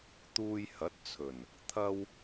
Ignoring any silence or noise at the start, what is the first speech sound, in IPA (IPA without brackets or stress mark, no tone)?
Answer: t̪